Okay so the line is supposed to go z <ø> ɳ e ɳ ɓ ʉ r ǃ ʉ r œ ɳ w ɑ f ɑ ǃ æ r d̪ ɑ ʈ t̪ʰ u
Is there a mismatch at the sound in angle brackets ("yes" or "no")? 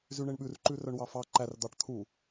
yes